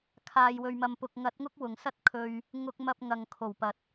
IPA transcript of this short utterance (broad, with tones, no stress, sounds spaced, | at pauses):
kʰ aː˧ j w ɵ˧ ɥ m ɐ˧ m p ʊ˨ k̚ ŋ ɐ˨˥ t̚ ŋ ʊ˥ k̚ w ʊ˨˩ ŋ s ɐ˥ t̚ kʰ ɵ˧ ɥ | ŋ ʊ˧ k̚ m ɐ˧ p̚ ŋ ɐ˨ ŋ kʰ o˨˩ w p ɐ˨ t̚